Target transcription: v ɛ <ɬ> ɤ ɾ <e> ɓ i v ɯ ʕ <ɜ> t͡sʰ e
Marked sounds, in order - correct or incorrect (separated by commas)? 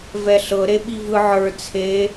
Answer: correct, correct, incorrect